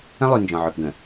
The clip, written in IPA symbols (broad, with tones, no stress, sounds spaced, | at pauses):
ə̃˦ lˠ y˨ n d͡ʒ ɔ̃˨ ʕ ø˨ p ɡ ə̃˨